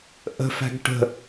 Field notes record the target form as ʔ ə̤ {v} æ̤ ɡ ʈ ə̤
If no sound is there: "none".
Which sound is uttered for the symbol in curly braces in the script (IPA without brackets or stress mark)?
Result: f